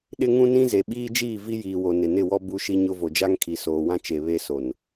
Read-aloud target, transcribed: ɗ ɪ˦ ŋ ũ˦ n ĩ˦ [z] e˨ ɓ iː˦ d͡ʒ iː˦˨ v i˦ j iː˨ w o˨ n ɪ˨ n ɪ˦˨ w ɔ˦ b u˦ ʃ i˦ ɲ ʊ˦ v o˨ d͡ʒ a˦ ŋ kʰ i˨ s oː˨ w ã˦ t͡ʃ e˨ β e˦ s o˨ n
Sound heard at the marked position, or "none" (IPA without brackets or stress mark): z